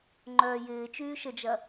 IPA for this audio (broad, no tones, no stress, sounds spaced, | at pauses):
ŋ͡ǃ œː j ɪː t͡ʃ yː ʃ ə d͡ʒ ɐ